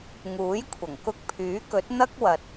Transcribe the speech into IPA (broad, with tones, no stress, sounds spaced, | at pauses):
ŋ uː˨˥ j kʷʰ ɐ˨˩ ŋ k ʊ˧ k̚ pʰ yː˨˥ k ɵ˨˥ t̚ n̪ ɐ˥ k̚ w ɐ˨ t̚